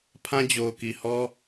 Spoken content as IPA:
pʰ ã˦ d͡ʑ o˨ ʊ̯ k i˨ h ɔ˦

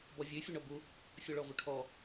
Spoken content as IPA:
b ɔ vʲ ʉ fʲ u ɳ ɔ b u | fʲ ɔ ɭ ɔ v u ʈʰ ɔ

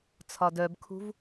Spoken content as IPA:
t͡sʰ ɒ d œ b kʰ ṳ v

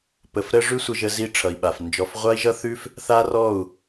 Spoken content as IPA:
p ə˨ f ɾ ə˦ ʐ ʉ˦ sʷ ə˧ ʒ ə˧ z i˦ ʈ͡ʂʰ ʌ˨ i̯ ɓ a˨ f n d͡ʒ ɔ˨ f ʁʷ a˦ i̯ ʒ ʌ˦ θ ʉ˦ f | θ a˦ r ɔ˦˨ u̯

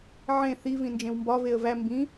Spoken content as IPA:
ʕ ẽ θ i v ĩ n d͡ʒ ẽ w m b ɒ v e ə̯ v æ m b ĩ

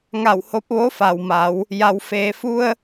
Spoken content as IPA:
ŋ a˧˩ w h o˧˥ p̚ ʋ o˧˥ f a˩ w m a˩˧ w | j a˩ w f eː˩ f u˧ ə̯

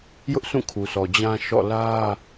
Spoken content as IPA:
j ʊ˦ ʔ s ũ˦˨ kʰ u˨ sʰ ɔ˨ d͡ʑ ã˦ ʃ ɔ̰˦˨ l ä˦

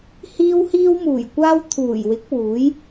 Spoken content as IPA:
h iː˧ w h iː˧ w m uː˨˩ j kʷ aː˧ w t̪ʰ uː˨˩ j w ɪ˨˥ k̚ w uː˨˥ j

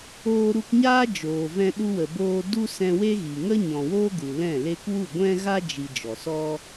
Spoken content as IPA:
oː˧ ɾ u˧ k ɲ aː˦ d͡ʒ oː˨ v ɛ̃˧ ɗ u˧ w ə˨ b oː˧ d u˦ s ɛ̃˧ w e˦ ɣ i˨ ŋ ə˦ ɲ ɔ̃˨ w oː˦ ɡ u˨ l ɛ̃˦˨ l e˧ k w u˦˨ ɡʷ ɛ̃˦ ɣ a˦ d͡ʒ i˨ d͡ʒ ɔ˨ s ɔ˦

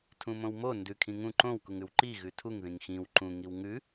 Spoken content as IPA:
tʰ ũ m õ w m o n d ʉ kʰ ĩ ŋ ũ ǃ õ w k u ŋ ʉ w ǃ i ɣ ʉ tʰ u ŋ ð ĩ ŋ x ĩ w ǃ ũ ŋ i w ŋ ʉ

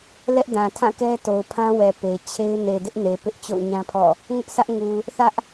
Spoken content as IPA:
l ɛ˦ ʔ d ã˨ tʰ ã˦˨ k ɛ˦ t o˨ ʊ̯ pʰ ã˦ w ɛ˨ p e˨ ɪ̯ t͡ɕʰ e˦ ɪ̯ n e˨ d ɪ˦ ʔ n e˨ p ɪ˦ ʔ t͡ɕ o̰˦˨ ʊ̯ ɲ ã˦ pʰ ɔ̰˦˨ | ŋ ʊ˦ ʔ sʰ ä˦ ʔ ŋ u˨ | θ ä˦ ʔ

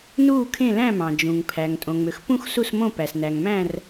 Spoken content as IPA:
n uː˦˨ kʰ ẽ˦˨ l æ̃˦˨ m ɑ̃˩ d͡ʒ ũ˩ ŋ pʰ æ˩ ŋ tʼ õ˩ ŋ͡m ø˩ x p ũ˦˨ x s u˦˨ s m õ˦˨ p æ˩ s n æ˩ ŋ m æ̃˦˨ r

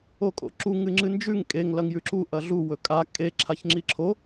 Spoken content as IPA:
o kʼ o̰ ǁ u ŋ ɨ ŋ͡ǁ ɨ n d͡ʒ ʉ ŋ kʼ e ŋ l ɐ ŋ j ʉ ǁ u ʔ ɐ ɮ u w ɵ kʼ a kʼ e ǁʰ a ç ŋ͡ǁ i ǁʰ o

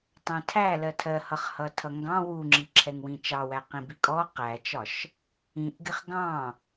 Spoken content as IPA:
tˤ ɛ̃ tʰ æ l ɜ tʰ ɜ h ʌ χ h ʌ tʰ ʌ ŋ ɡ ɑ̃ w u ŋ͡ǁ i ǁʰ ɛ ŋ w ĩ t͡ʃ ɑ w æ q ĩ b i kʼ ɔ q æ t͡ʃ ɒ ʃ | ĩ ʔ ɡ ɪ χ ɡ ɑ̃

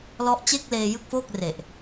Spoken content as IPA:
l ɔ˦˥ ʔ t͡ɕ e˥˩ k̚ l eː˧ j ɯ˥˩ k̚ f oː˥˩ k̚ r e˨˩ ʔ

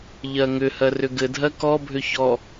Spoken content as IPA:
ʎ ɜ ŋ ʏ h ɜ r ʏ ɡ ɘ dʱ ɜ k ɔ bʱ ʏ ç ɔ

